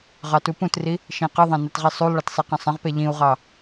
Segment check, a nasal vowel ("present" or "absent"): present